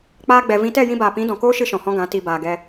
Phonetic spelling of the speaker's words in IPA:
k͡p aː˦ ɡ͡b ɛ˧ v ĩ˦ t ɛ˦˨ j ĩ˧ b aː˨ p ĩ˨˦ d ɔ̃˨ k oː˦ ʃ ɨ˦ ʃ ɔ̃˨ h ɔ̃˦ ɡ ã˨˦ t i˧ b aː˧ ɡ ɛ˦

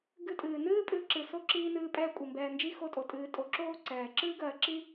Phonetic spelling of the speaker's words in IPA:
ɡ ɨ˦ tʼ ɨː˨ n ɨː˥ pʼ ɨː˦ ǁ ɨ˨ s o˥ ǁ iː˥ n ɨː˦ pʼ ɛː˦ kʷʼ i˩ m b ɛː˨ n d͡ʒ i˥ x o˦ tʼ o˩ tʼ ɨː˨ tʼ o˨ ǁ oː˥ ǀ ɛː˩ ǁ ɨː˥ ɡ ɜ˨ ǁ i˥

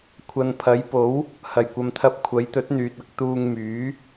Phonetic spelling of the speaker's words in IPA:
kʷʰ ɐ˨ n pʰ ɐ˨˥ j p o˨˥ w | h ɐ˨˩ j kʷ ɐ˨ m t̪ʰ ɐ˧ p̚ kʷʰ ɐ˨˥ j t̪ ɵ˨˥ t̚ n̪ yː˨ t̚ ɐ˧ k̚ t̪ uː˧ ŋ m yː˨˥

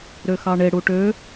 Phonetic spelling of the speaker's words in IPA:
ɾ ø x ɑ ɳ e ɽ u ʈ ø

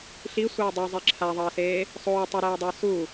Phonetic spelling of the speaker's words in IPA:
ɬ i sʷ ʌː dˤ i zˤ e ǁʰ a ðˤ ʌː s eː | sˤ oː tˤ ʌ ɾ ɛː dˤ ʌː s u

